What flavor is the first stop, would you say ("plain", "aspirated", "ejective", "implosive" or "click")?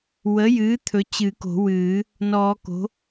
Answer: aspirated